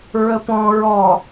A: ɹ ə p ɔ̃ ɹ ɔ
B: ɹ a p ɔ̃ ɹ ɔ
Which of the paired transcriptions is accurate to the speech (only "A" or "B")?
A